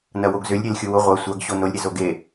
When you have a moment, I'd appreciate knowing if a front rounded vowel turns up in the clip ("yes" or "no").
yes